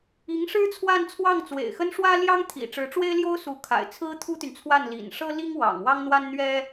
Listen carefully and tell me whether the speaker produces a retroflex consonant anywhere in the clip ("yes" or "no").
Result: yes